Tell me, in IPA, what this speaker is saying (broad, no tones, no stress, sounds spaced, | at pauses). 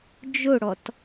d͡ʒ ʊ ɽ ɔ t